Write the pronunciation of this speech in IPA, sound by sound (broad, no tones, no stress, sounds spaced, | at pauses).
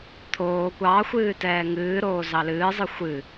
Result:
t̪ʰ oː kʷ ɑ xʷ ɨː t ɛː ŋ ɨː ɾ oː z ɑ l ɨː zˤ ɨ xʷ ɨ